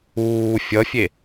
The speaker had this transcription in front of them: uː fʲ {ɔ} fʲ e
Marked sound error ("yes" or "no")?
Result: yes